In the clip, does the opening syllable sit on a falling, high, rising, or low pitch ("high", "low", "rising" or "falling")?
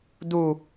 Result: low